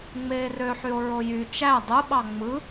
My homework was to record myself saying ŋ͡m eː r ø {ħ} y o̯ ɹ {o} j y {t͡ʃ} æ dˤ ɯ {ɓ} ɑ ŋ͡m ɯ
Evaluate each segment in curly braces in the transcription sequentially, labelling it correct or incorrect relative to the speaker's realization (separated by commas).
correct, correct, correct, correct